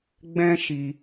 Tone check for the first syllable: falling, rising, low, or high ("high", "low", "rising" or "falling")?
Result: high